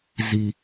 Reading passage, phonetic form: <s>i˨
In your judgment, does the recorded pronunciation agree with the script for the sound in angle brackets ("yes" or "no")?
no